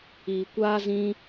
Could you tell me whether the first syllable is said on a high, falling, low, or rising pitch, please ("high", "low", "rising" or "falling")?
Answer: low